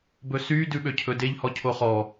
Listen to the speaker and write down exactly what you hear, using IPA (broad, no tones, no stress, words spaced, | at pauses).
bɵsy dʉɓøcʰɵdeʎ hɔcʰoχɔ